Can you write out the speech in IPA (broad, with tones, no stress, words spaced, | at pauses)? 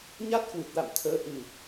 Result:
ɲa˦˥t̚kwɨ˨˩t̚la̰˧˨mt̪ʰəː˨˦ ʔɨ˨˩